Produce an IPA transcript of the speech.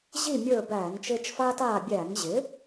ʑ i˦˨ mʲ ə˞˦˨ b æː˧˩˧ ŋ t͡ʃ ɪː˦ t͡ʃ f aː˦ t aː˦˨ bʲ æː˧˩˧ ŋ ʑ ɪ˩˥

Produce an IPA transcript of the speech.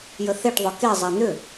j ə θ e ʈ ðˤ ʏ k e zˤ ɛ n̪ ʏ

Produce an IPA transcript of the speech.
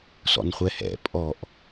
s ɔ̰ n χʷ ɛ h ɛ̰ pʼ ɔ ʔ

